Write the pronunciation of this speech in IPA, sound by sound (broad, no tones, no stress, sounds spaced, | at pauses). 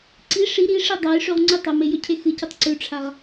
ǀ i ʂ i ɾ i ʂ i dˤ a j ʂ ʉ ʁ ŋ͡ǀ ʉ tˤ ɐ m e j ɵ cʰ e x ɨ c ɨ tˤ ǀ ʉ ʈ͡ʂʰ a ʁ